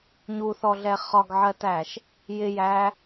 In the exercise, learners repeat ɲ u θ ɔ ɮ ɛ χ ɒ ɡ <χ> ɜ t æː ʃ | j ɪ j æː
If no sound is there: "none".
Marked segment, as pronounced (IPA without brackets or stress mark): ʕ